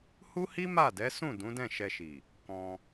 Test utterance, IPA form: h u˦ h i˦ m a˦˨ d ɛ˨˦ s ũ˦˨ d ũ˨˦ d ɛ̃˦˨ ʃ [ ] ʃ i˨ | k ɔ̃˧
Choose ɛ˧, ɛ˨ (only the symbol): ɛ˧